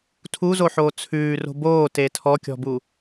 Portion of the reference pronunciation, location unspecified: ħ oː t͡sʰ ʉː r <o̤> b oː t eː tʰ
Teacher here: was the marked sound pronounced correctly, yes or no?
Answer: yes